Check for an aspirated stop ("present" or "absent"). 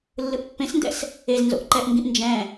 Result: absent